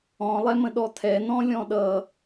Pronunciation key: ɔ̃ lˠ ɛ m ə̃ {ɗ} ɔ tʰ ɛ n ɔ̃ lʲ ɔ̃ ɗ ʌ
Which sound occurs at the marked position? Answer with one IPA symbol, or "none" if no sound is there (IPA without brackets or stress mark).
ɗ